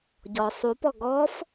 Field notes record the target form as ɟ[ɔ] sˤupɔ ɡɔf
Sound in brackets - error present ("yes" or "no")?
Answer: no